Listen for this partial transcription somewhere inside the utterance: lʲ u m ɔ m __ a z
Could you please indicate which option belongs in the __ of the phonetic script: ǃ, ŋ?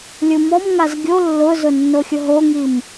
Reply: ŋ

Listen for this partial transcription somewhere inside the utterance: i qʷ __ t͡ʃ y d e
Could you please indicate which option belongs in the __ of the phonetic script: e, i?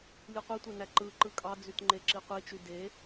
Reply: i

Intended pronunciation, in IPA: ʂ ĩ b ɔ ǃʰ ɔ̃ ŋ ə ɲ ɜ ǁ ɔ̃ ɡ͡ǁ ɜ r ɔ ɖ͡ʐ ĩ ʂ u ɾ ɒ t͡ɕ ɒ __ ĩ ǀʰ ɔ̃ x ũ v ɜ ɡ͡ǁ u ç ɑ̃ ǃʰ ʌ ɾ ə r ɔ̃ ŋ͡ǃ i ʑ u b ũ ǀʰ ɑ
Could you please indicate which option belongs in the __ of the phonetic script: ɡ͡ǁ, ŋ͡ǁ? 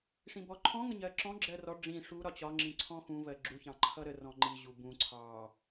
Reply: ŋ͡ǁ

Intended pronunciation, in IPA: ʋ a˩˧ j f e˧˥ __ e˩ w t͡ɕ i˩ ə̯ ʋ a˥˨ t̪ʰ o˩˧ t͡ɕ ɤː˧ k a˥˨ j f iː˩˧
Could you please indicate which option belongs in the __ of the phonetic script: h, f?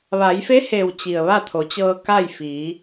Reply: h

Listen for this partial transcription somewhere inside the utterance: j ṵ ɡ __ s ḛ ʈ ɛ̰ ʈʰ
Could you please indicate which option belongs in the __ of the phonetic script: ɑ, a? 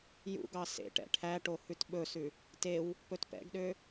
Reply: ɑ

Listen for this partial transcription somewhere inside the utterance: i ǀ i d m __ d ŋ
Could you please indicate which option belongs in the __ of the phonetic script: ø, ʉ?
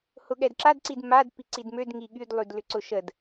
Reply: ø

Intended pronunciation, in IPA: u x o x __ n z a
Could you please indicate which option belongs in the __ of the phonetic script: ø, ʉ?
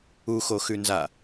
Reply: ʉ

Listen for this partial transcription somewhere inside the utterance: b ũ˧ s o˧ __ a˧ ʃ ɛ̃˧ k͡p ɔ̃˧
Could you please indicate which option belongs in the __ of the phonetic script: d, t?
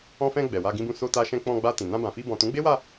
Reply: t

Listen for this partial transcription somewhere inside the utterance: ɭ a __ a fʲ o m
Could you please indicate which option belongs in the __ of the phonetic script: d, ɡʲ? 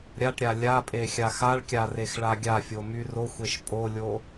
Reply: ɡʲ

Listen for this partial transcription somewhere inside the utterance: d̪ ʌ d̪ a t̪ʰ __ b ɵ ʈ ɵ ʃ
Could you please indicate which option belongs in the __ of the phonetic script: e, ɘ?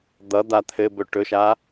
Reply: ɘ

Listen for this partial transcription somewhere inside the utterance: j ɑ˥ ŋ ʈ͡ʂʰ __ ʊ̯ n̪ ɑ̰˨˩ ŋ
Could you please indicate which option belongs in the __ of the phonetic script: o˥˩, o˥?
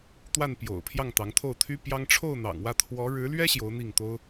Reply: o˥˩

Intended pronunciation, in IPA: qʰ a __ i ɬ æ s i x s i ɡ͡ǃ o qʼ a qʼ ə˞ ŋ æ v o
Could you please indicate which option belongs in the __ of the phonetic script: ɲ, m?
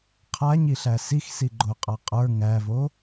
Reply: ɲ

